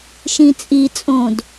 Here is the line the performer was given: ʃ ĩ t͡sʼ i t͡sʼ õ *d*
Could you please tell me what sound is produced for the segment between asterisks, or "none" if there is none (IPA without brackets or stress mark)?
d